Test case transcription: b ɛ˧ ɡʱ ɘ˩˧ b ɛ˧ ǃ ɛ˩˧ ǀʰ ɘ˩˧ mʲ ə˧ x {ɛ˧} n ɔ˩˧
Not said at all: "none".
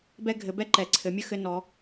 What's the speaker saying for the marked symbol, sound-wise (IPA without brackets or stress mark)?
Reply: ɘ˧